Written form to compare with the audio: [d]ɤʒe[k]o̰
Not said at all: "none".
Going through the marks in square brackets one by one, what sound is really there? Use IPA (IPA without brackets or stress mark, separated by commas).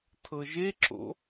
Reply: tʰ, ǁ